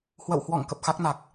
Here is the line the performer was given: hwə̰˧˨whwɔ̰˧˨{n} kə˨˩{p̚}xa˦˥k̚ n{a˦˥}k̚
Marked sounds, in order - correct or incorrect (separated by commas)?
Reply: incorrect, correct, incorrect